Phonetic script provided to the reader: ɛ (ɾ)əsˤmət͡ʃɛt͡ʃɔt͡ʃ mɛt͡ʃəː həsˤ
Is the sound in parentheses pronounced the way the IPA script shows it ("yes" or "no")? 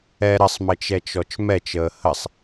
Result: yes